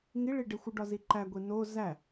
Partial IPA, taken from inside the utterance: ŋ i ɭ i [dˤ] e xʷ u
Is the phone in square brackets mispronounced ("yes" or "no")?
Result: yes